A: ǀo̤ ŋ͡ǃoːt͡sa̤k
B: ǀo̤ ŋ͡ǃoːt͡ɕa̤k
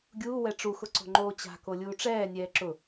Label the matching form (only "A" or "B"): B